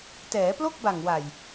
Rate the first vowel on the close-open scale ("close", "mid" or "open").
mid